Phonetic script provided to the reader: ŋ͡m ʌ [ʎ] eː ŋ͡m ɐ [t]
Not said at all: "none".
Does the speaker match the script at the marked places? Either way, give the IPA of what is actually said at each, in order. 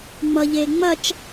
ʎ, t͡ʃ

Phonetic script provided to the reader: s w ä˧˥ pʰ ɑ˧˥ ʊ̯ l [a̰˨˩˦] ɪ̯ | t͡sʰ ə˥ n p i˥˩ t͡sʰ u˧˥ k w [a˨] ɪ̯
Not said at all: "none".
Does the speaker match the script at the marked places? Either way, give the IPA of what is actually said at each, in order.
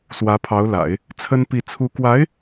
a̰˨˩˦, a˧˥

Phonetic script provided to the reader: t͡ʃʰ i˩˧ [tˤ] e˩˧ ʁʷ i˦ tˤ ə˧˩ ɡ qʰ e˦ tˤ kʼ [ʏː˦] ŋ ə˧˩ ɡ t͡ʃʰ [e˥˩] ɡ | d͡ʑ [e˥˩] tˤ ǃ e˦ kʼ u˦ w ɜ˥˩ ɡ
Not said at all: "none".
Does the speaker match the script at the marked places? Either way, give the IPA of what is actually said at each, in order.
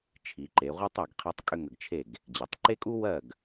ǃ, ʏ˦, e˥˩, e˩

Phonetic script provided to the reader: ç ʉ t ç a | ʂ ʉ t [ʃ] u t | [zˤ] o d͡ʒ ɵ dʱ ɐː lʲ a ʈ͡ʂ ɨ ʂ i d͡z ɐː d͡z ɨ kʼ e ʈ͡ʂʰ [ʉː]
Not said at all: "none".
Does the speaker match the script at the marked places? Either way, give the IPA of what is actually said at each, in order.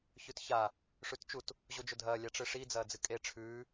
t͡ʃ, ʑ, ʉː

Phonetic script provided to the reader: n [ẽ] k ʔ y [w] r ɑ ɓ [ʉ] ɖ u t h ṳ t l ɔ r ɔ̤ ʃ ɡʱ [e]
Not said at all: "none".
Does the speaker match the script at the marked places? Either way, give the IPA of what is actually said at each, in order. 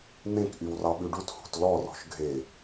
ẽ, w, ʉ, e

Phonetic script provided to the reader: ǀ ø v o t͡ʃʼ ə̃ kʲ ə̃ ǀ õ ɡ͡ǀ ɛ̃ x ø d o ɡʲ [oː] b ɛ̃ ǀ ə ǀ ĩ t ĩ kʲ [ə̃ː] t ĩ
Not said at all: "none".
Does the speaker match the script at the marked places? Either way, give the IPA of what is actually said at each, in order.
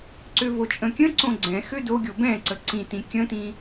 o, ə̃

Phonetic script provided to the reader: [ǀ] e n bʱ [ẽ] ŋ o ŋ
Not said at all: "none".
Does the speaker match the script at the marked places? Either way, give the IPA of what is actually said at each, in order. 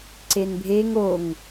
ǀ, e

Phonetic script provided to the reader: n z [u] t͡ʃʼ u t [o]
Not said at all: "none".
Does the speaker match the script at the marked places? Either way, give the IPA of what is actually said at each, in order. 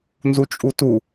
u, u

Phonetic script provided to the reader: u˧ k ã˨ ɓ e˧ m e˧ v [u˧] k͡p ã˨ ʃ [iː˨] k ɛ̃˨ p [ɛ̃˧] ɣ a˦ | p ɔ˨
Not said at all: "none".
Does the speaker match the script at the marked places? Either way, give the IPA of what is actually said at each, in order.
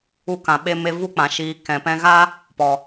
u˦, iː˨˦, ɛ̃˧

